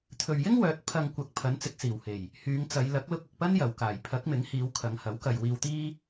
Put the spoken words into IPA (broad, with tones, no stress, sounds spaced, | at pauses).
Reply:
t̪ʰ ɵ˨ ɥ j ɪ˥ ŋ w œː˨˥ t̚ pʰ ɐ˧ ŋ kʷ ɐ˨ k̚ pʰ ɐ˨˥ n t͡s ɪ˨ k̚ s iː˨˩ w h e˨˩ j | h yː˨˧ ŋ t͡s ɐ˨˧ j l ɐ˨˥ k̚ l ʊ˧ k̚ ʊ˨ k̚ p ɐ˥ n j ɐ˨˩ w k aː˨˩ j pʰ ɐ˨˥ k̚ m ɪ˨˥ ŋ h iː˨˧ w kʰ ɐ˨˧ ŋ h ɐ˨˥ w k ɐ˨ j w iː˧ w t̪ iː˥